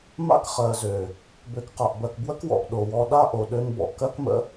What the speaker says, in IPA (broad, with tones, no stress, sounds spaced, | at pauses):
m a̰˦ k χ ɜ˨ z ø˨ | b ø˨ k q a˨ ʔ b ɜ˨ k b w ə˦ k w ɔ̰˨ ʔ ɗ o˨ w ɔ˧ ɗ a˦ ʔ o˨ ɗ ø˧ n b ɔ̰˨ ʔ k ɜ˦ k m ə̰˦